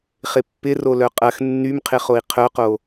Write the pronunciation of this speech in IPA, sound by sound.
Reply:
χ ɪ pː ɪ r o l œ qʼ ɐ x nː y m qʰ ɪ χ o i̯ qʰ œ q o

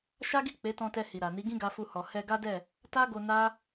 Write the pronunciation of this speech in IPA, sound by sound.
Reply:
ʃ a˦ ɡ i˦˨ k͡p e˨˦ t ɔ̃˧ t ɛ˧ h i˨ ɾ a˨ n i˨˦ ɡ ĩ˦ ɡ a˧ f u˧ h ɔ˨ h ɛ˧ ɡ a˦ d ɛ˦˨ | t a˦ ɡ o˧ n a˦

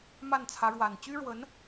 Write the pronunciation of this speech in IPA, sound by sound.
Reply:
m a˥˩ n t͡sʰ ä˧˥ ɻ w a˨˩ n t͡ɕ y˥ ɻ w ə˧˥ n

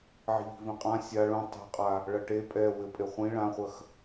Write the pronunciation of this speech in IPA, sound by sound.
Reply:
ʕ i̤ ʎ i̤ v ĩ qʼ ã sʲ a ɭ ũ tˤ ɛ̤ qʼ a | ɭ ɐ ʈ e pʼ ɛ w ɘ pʼ e χʷ ĩ ɭ ã χʷ ɐ x

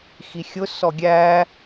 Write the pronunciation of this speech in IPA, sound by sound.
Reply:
x i xʲ ʊ s ɔ ɡʲ æ

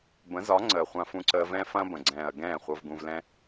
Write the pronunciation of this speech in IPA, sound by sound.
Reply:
b ə̃˨˦ z ɒ˨˦ ŋ͡ǀ əː˨ χʷ ã˧ f ũ˧ ǀ əː˧ v ɛ̃˦ f ɐ̃ː˦ b ə̃˨ ɡ͡ǀ ɛ̃ː˨ ɐ̯ ɡ ɛ̃ː˦˨ χʷ ɤ˧ v ɡ ũ˧ v l ɛ̃˦

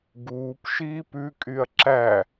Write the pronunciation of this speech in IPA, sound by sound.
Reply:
ɡ uː p ʃ iː p ʉ kʼ y ɐ̯ ǁ æ

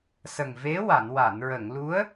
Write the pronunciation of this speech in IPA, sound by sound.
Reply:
s ə˨˩ ŋ v e˧˥ w a˨˩˨ n w a˨˩˨ n ɹ ə˨˩˨ ŋ l u˧˥ ə̯

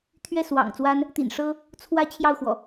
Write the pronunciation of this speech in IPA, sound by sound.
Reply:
t̪ʰ ɥ ɛ˥˨ s w ɑ̰˨˩ ŋ t͡s w a˦ n | t̪ ḭ˨˩ n ʂ ɤ˦ | t͡sʰ w ä˦ t͡ɕʰ j ɑ˥˨ ʊ̯ x w ɔ̰˨˩

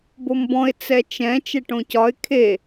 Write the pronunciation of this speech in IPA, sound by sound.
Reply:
b o m b ɔ̃ ɪ̯ t͡s ɛ t͡ʃ ɛ̃ t͡ʃ ɛ ʈ õ c ɒ ɪ̯ kʰ e

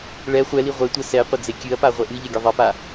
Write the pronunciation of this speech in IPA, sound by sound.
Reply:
ɭ ɛ χʷ ɛ l i ʁʷ e tʷ ɛ s ɛ qʷ ɘ d͡z e kʲ ɨ ɐ̯ p a ʁʷ ɛ ʔ ɨ ʎ ɛ ɡʲ ɘ ðˤ e p a

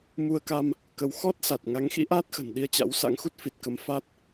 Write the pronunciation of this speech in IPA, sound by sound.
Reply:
m u˧ ə̯ k a˧ m | k ə˧ w x ɔ˦˥ t̚ s a˨˩ t̚ ŋ a˨˦ ŋ x ḭ˧˥ ʔ a˦˥ t̚ x ə̤˨˩ n ɗ i˧ ə̯ t͡ɕ a̰˧˥ w s a̰˧˥ ŋ x u˦˥ t̚ f i˨˩ t̚ k ə˨˦ m f a˦˥ t̚

